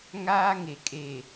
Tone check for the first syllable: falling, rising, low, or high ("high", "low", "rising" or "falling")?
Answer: high